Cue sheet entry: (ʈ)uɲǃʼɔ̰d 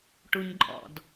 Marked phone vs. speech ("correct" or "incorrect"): correct